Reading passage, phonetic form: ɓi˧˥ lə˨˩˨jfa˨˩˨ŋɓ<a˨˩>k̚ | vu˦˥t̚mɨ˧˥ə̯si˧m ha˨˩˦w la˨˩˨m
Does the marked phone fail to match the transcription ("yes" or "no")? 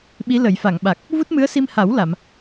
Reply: no